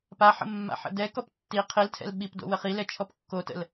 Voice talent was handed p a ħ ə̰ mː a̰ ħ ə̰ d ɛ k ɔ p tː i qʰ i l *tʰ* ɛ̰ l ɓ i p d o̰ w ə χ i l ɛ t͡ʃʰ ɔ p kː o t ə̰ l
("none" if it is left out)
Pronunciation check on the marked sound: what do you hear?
tʰ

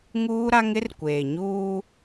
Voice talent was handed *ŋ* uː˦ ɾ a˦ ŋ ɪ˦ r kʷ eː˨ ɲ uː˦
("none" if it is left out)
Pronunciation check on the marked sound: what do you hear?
ŋ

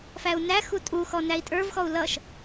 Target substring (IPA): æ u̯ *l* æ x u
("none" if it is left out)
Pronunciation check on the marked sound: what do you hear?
n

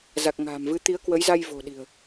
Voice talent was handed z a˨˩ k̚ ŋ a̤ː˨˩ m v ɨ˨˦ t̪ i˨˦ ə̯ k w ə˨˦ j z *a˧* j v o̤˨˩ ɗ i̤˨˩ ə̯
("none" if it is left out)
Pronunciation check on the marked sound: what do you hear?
a˧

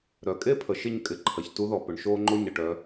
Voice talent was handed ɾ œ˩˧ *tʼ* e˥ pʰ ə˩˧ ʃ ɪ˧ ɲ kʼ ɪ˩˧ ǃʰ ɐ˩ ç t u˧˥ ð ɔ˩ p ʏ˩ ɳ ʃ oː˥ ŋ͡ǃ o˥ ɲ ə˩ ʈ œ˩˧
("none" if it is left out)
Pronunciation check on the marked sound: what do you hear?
kʼ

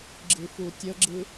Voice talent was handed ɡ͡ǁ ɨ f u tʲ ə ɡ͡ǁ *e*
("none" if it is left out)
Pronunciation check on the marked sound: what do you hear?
ɨ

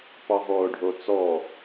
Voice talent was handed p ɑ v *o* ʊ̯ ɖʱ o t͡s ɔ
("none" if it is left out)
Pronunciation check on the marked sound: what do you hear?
ɔ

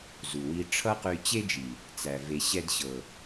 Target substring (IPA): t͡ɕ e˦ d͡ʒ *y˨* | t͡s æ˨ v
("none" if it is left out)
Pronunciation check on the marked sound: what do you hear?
i˨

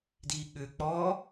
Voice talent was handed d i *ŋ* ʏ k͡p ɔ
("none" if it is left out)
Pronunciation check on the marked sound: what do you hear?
ɠ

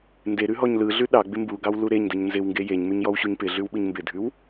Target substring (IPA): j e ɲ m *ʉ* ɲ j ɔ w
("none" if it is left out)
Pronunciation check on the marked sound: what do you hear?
ʉ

